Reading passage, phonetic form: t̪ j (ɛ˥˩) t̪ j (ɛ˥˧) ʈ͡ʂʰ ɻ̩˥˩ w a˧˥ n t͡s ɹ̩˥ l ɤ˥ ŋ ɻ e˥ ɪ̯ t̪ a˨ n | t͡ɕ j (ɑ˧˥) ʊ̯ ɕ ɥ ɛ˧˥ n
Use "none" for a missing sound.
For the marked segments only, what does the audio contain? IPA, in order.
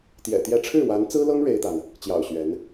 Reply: ɛ̰˨˩, ɛ˥˧, ɑ̰˨˩

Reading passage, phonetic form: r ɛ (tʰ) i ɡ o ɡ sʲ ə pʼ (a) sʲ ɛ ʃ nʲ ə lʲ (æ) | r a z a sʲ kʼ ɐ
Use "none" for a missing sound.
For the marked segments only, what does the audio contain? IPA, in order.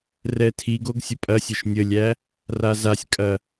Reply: tʰ, ɐ, æ

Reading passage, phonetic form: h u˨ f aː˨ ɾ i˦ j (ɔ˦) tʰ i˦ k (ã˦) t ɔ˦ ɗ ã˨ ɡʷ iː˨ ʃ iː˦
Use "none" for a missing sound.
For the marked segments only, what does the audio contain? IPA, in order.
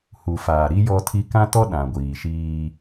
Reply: ɔ˦, ã˦

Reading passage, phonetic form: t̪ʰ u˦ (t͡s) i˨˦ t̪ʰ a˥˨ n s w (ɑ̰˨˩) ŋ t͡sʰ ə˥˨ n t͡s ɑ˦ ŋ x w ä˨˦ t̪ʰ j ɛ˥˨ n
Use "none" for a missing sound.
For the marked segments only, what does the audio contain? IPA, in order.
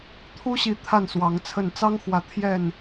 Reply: ɕ, ɑ˨˦

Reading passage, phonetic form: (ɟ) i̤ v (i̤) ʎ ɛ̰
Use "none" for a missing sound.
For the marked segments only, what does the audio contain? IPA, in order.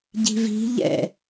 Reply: ɟ, i̤

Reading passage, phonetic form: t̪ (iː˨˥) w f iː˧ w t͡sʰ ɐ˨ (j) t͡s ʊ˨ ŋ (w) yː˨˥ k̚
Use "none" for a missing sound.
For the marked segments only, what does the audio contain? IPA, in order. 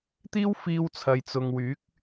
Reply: iː˥, j, w

